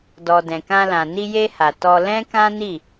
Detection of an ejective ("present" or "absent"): absent